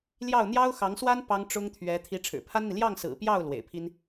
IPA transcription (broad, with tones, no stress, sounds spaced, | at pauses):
l j ɑ˥˩ ʊ̯ n̪ j ɑ˥ ʊ̯ x ɑ˧˥ ŋ s w a˥ n p ɑ˥ ŋ ʈ͡ʂ ʊ˥ ŋ t̪ʰ ɥ ɛ˧˥ t̪ʰ i˧˥ ʈ͡ʂʰ ɻ̩˨˩ pʰ a˥ n n̪ i˨ l j ɑ˥˩ ŋ s ɹ̩˨˩ p j ɑ˥˩ ʊ̯ l w ḛ˨˩ ɪ̯ pʰ i˥ n